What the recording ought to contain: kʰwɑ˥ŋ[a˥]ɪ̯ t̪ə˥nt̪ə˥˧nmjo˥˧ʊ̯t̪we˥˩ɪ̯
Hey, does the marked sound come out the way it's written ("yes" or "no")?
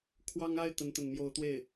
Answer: yes